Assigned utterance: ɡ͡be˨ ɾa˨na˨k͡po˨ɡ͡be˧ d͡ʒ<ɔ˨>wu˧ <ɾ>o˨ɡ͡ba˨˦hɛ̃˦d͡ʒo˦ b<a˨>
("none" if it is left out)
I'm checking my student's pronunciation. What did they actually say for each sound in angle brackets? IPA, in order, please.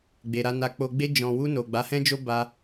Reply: ɔ̃˨, n, a˧

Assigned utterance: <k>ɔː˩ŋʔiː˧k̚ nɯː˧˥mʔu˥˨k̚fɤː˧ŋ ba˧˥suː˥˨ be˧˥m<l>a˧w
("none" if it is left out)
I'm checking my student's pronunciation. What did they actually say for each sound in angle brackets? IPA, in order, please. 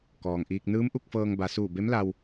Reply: k, l

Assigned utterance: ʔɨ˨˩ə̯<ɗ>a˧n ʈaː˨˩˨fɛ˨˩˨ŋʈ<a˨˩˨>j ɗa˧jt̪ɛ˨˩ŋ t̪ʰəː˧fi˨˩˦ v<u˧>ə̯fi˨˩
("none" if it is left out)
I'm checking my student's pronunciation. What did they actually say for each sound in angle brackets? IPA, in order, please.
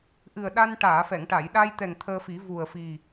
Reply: ɗ, a˨˩˨, u˨˩

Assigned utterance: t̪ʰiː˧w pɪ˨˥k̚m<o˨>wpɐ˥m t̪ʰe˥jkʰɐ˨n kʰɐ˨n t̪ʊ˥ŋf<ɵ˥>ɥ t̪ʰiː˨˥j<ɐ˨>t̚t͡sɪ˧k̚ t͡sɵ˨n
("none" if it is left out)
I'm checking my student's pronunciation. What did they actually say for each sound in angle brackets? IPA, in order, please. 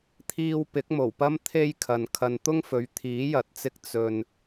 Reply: o˨˩, ɵ˨˧, ɐ˨

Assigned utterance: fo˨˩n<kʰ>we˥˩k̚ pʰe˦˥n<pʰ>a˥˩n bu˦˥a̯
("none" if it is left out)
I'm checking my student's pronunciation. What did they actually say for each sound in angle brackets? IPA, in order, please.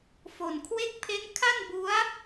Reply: kʰ, kʰ

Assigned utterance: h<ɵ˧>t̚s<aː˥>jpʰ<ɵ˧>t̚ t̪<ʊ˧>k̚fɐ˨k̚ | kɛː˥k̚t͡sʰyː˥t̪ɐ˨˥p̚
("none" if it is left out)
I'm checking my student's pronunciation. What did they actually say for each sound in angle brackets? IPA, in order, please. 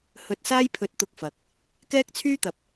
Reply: ɵ˧, aː˥, ɵ˧, ʊ˧

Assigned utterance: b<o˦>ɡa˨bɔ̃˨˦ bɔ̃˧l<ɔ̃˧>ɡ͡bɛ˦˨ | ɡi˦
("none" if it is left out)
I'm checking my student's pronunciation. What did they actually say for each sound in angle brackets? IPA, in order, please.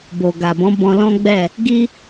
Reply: o˨, ɔ̃˦

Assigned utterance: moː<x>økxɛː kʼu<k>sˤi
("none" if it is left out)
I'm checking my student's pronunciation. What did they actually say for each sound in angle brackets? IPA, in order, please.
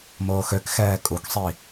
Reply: x, k

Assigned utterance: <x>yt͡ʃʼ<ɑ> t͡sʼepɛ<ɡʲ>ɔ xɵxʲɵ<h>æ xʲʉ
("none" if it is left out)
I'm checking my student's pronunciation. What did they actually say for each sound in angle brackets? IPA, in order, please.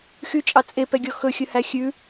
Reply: x, ɑ, ɡʲ, h

